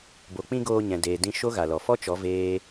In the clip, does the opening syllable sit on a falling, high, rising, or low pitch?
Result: low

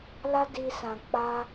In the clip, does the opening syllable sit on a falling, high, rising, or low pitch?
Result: high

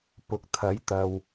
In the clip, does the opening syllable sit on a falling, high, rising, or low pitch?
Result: low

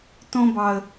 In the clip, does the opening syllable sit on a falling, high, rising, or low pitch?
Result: high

